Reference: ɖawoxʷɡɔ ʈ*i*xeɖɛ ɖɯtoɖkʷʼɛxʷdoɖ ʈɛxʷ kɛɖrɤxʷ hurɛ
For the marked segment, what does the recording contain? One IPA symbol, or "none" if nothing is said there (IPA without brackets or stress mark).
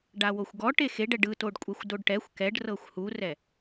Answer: e